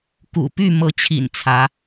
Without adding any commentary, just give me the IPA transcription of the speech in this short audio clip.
kṵ˨˩ py˥˩ mɤ˧˥t͡ɕʰḭ˨˩n t͡sʰä˧˥

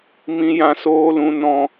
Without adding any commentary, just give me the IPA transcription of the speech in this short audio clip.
mĩ˨jã˨soː˨lũ˨ nɔ̃˨

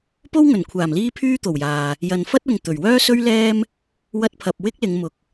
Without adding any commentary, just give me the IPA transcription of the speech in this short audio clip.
po˥wŋɵ˨˩nkʷʰaː˨˩m liː˥pʰyː˥t̪o˨˩wjaː˨ | jɐ˨nfɐ˥t̚ʊ˨ŋ t̪ɵ˨˩ɥ wœː˥sɵ˥ɥlɛː˥m | wɐ˥t̚pʰɐ˧p̚ wɪ˥k̚lɪ˨˧ŋ mʊ˨k̚

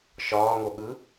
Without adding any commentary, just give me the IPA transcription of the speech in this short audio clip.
ʃɒːŋo ɠɯ

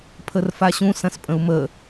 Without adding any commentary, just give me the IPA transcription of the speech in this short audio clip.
pʰərfaɕũ sɐ̃spʼə̃u̯mə

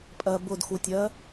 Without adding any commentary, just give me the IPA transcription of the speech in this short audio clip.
pʼɜbʊdxutʲɜ

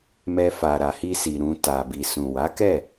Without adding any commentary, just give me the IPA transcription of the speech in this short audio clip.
mɛ˧ fa˨ɾa˨hi˧si˨ ɾũ˧ ta˨bi˨ sũ˨wa˨˦kɛ˦˨

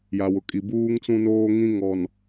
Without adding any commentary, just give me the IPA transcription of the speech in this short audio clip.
ja˨wʊ˨kʼi˨ buː˦ŋt͡sũ˦noː˦ ŋĩ˦ŋɔ˨n

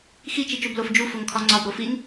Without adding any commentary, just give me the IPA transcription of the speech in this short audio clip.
xi t͡ʃit͡ʃoblof d͡ʒufoŋkʰɒ ŋ͡ǀɒb ɾofiŋ

